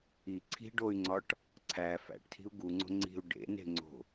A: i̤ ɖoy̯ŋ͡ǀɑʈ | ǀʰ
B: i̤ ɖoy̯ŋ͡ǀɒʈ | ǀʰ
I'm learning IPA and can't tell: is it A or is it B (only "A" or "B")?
B